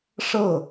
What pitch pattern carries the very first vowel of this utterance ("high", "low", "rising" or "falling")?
falling